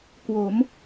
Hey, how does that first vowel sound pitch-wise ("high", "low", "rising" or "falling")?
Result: rising